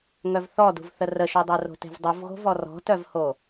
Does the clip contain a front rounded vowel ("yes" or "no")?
yes